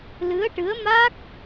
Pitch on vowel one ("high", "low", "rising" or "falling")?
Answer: rising